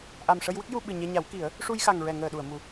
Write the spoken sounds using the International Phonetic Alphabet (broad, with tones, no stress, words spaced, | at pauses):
ʔa˨˩m ʂə˧j wə˦˥k̚ju˧ɓɨ˨˩ ɲɛ˧ɲa˨˩˦wki˨˩˦ə̯ | ʂu˧jxa˨˩ŋɹɛ˨˩˨ ŋəː˨˩ɗu˨˩˨ə̯mu˨˩